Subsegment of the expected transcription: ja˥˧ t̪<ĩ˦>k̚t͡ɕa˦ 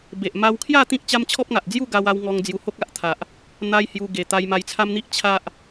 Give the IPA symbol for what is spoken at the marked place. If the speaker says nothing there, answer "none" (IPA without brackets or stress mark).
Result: ĩ˦